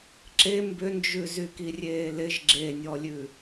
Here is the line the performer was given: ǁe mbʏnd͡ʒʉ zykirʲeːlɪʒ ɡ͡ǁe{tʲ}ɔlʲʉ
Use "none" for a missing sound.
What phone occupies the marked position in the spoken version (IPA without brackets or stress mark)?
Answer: nʲ